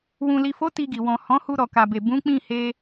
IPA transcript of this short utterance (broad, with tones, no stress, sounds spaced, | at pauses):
w ũ˨ l i˨ f o˨˦ t i˧ ɡ i˨ w ɔ̃˨ h ɔ̃˨˦ h u˧ ɾ ɔ˨ k a˨ b e˨ b ũ˨˦ k͡p ĩ˦˨ h e˧